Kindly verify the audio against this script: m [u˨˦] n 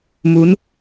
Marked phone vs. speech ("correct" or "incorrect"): correct